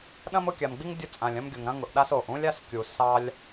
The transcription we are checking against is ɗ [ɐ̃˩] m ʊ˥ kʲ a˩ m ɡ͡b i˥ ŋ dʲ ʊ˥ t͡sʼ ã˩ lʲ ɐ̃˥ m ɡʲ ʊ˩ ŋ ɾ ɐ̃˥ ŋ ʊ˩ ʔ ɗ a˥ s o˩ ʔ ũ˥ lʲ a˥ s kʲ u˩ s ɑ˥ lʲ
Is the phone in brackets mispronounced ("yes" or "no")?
yes